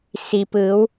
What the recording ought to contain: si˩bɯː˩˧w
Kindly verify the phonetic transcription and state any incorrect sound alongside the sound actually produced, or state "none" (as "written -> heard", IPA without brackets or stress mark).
b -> p